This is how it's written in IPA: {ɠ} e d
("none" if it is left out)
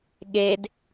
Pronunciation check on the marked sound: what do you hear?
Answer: ɠ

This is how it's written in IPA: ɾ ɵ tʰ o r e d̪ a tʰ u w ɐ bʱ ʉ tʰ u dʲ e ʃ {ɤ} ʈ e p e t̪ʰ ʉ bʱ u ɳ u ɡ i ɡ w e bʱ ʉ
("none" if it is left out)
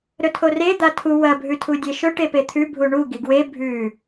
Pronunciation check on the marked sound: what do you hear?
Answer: ɵ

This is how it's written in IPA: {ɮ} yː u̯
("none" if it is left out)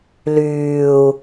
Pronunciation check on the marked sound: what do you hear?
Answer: l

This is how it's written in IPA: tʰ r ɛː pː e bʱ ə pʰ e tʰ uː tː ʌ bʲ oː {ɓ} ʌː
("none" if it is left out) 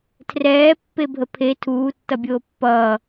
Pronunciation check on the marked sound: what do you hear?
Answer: pː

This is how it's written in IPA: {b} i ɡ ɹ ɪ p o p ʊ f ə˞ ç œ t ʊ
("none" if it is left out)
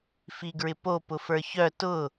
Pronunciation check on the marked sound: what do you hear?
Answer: f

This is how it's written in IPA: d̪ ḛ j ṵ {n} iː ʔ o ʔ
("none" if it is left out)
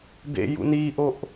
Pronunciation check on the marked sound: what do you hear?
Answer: n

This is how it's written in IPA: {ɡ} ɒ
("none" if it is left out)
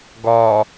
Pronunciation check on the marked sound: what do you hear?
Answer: ɡ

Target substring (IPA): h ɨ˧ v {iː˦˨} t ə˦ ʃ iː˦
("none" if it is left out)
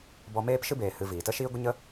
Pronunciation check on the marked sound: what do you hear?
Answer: iː˨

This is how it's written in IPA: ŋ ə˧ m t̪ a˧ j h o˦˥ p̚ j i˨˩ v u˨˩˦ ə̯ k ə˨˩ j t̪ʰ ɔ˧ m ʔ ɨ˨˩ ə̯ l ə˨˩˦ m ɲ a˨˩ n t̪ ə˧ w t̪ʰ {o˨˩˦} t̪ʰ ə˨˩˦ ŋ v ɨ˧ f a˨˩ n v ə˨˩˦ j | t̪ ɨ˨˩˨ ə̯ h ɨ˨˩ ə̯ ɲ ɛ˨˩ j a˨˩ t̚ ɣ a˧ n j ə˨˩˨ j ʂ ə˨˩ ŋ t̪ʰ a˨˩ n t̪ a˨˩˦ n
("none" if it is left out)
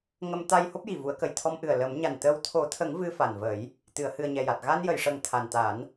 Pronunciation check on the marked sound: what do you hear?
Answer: o˨˩˦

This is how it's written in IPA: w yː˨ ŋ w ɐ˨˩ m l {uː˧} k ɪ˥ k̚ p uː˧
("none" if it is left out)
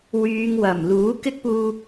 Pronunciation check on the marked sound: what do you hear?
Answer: uː˨˥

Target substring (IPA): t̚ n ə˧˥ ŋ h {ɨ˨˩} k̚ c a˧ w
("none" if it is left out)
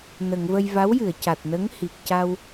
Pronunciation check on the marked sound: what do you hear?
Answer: i˨˩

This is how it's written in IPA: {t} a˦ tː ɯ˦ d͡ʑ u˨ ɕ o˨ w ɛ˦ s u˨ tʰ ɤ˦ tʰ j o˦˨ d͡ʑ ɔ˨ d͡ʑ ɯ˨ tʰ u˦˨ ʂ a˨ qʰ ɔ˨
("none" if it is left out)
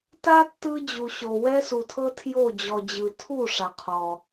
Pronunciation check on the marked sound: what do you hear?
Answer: t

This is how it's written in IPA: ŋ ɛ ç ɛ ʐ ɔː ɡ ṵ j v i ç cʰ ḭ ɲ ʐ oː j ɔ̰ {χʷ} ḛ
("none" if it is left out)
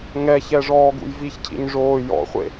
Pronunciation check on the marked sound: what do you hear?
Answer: χʷ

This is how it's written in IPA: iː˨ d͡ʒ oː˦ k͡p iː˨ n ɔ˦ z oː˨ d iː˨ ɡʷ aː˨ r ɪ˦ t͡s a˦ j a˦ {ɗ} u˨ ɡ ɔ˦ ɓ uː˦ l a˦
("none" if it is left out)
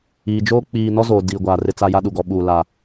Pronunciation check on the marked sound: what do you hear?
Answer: ɗ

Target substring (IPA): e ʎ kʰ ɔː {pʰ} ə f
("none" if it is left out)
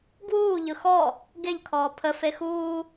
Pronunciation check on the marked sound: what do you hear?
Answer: pʰ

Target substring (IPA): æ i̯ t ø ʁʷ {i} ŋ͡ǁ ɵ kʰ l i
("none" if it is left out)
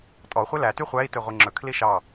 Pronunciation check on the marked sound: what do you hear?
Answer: i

